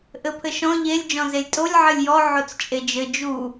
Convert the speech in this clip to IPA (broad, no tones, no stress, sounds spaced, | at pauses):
ʔ ɘ pʰ ɘ ʃ ɔ̃ ʎ e lʲ d͡ʒ ɔ̃ z e lʲ tʼ o lʲ ʕ ɘ lʲ j ɔ ʕ o t͡s t͡ʃʼ e d͡ʒ ɘ d͡ʒ u